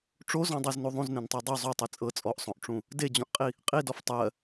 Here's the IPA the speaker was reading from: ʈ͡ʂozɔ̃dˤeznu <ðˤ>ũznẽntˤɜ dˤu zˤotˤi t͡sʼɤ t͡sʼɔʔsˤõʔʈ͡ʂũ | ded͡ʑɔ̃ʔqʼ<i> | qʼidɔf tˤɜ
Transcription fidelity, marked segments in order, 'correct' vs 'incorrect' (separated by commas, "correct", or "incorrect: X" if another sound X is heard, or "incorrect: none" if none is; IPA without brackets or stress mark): correct, correct